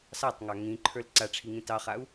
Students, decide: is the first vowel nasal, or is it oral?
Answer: oral